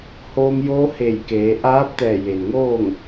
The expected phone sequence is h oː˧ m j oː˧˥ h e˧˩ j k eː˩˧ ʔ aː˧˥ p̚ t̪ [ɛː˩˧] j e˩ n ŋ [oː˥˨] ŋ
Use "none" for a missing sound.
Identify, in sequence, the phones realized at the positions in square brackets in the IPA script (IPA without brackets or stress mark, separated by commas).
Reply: ɛː˧˩, oː˥˨